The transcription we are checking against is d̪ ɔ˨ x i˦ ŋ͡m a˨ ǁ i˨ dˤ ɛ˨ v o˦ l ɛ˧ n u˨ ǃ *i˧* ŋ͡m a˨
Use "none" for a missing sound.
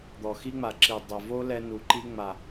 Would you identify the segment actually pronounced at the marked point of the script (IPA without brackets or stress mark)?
i˧